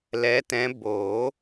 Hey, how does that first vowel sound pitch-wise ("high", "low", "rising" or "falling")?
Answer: rising